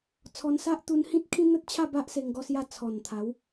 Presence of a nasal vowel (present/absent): present